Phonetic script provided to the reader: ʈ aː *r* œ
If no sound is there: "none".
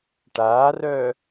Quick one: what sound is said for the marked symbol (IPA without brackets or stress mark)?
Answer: r